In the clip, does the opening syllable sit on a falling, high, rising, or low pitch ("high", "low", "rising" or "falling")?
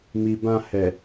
low